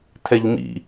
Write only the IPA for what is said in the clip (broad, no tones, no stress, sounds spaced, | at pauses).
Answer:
tʰ ɛ ʎ m ḭ